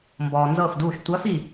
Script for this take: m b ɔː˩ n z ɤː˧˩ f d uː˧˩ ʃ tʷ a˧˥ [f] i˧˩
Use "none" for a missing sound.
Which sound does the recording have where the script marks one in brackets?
f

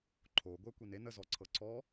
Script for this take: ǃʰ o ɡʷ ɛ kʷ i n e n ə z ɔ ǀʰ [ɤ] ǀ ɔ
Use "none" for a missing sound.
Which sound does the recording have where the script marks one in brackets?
ɤ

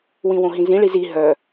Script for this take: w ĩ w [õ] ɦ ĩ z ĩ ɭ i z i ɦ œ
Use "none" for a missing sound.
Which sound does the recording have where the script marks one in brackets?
õ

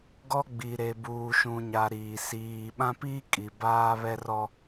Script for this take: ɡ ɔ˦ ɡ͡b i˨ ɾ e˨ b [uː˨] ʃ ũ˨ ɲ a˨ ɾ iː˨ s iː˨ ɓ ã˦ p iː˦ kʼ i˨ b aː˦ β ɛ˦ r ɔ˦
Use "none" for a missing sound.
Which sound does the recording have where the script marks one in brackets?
uː˨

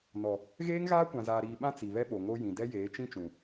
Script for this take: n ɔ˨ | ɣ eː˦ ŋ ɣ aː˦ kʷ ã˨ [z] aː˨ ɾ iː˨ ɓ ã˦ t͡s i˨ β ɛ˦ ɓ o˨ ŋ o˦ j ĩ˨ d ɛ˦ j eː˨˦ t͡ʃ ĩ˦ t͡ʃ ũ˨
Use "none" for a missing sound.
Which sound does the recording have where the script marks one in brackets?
z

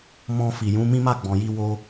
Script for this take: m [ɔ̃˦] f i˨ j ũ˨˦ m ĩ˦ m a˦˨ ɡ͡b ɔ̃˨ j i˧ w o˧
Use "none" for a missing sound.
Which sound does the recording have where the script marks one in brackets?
ɔ̃˧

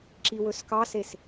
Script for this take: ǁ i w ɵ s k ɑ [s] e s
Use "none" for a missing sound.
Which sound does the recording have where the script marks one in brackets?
s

